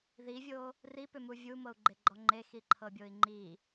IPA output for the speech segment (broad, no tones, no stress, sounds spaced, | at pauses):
ð i vʲ o | r i p ʏ m u vʲ u m ɤ u̯ ɡ͡ǃ e ɡ͡ǃ ɔ ŋ͡ǃ e x i ǃʰ ɤ bʲ o i̯ ŋ͡ǃ i